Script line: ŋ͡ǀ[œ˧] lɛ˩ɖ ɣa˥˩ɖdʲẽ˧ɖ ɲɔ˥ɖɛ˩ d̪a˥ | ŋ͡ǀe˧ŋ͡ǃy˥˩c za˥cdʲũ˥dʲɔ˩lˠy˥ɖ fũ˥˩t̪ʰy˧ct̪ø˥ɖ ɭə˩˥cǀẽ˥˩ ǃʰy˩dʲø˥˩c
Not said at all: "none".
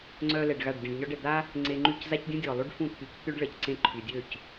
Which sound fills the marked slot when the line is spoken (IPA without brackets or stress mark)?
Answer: œ˧